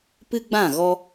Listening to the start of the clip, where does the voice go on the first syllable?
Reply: high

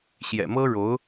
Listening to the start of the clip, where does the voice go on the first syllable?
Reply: low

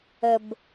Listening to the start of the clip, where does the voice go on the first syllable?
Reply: low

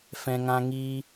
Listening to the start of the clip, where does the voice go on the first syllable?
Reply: high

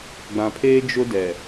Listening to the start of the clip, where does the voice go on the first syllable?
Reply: low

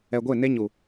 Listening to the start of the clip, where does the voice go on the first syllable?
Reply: low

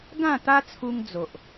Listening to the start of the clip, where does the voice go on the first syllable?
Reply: falling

